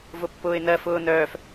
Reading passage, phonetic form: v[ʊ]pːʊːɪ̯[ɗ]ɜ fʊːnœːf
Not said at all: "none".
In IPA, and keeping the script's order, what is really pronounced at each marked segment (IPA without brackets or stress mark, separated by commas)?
ʊ, n